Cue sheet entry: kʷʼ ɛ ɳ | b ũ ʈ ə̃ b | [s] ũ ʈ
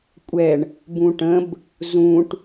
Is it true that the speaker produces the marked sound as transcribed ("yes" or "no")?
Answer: no